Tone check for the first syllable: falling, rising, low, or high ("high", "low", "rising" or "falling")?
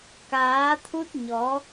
rising